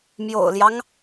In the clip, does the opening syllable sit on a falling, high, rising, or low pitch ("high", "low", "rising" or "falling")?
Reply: low